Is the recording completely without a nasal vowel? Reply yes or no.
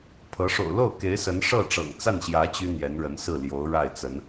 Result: yes